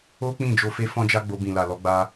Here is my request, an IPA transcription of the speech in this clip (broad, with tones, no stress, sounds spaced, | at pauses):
o˦ k͡p ĩ˦˨ d͡ʒ o˧ f e˦ f ɔ̃˦ d͡ʒ a˦ ɡ͡b o˧ b ĩ˨ l a˨ l ɔ˧ ɡ͡b a˧